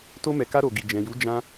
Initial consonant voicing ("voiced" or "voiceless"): voiceless